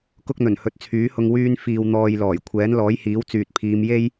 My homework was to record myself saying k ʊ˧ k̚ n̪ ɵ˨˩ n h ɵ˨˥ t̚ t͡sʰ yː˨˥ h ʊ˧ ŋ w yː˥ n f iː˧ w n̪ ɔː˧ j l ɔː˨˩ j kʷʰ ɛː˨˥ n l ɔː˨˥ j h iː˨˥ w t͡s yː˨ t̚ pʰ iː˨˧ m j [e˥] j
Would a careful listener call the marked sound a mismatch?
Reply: no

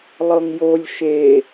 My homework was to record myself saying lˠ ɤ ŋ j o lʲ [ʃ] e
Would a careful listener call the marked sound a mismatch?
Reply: no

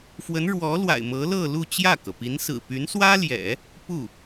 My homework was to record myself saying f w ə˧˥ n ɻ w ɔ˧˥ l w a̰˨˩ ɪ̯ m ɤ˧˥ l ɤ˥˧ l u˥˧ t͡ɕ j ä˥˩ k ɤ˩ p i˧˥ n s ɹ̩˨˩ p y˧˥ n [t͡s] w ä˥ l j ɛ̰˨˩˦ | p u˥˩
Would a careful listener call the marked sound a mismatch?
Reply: yes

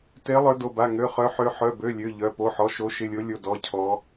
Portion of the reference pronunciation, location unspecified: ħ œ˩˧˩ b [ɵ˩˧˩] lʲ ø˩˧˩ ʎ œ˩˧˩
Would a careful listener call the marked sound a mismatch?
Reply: yes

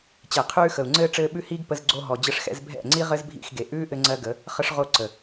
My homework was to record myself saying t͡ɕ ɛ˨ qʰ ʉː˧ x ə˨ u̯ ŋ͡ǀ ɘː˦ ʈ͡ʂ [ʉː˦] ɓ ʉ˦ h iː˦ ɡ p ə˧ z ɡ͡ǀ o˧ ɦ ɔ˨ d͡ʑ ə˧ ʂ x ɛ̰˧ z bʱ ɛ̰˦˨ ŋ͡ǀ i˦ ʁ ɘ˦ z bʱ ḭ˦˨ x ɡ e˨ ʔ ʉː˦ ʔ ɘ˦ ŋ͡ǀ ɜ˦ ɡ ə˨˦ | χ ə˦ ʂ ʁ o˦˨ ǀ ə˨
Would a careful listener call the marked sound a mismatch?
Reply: yes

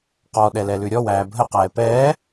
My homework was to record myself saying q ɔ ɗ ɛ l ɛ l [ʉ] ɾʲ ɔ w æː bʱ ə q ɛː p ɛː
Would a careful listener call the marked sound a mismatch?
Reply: no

